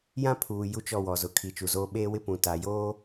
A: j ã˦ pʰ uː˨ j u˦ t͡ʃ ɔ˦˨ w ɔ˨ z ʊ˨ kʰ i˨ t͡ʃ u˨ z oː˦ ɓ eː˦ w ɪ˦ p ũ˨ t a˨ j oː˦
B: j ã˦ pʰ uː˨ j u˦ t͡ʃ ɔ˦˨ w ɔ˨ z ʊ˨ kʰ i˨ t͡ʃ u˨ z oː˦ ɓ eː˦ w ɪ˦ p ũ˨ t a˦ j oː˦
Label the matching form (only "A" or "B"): A